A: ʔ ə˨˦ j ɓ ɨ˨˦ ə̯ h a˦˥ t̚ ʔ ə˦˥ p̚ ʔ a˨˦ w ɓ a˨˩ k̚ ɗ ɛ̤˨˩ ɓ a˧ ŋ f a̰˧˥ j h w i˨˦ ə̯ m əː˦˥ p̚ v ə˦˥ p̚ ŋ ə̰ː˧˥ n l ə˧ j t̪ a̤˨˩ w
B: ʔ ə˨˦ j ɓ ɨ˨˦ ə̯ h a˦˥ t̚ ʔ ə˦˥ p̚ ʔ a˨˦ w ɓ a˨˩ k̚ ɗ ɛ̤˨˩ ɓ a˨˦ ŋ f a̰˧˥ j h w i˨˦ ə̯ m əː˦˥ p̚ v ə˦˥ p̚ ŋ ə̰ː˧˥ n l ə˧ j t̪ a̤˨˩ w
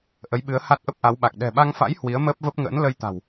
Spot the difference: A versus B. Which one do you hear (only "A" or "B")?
A